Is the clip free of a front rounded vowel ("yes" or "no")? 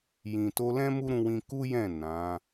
yes